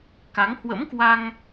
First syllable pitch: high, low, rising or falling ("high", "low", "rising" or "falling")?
rising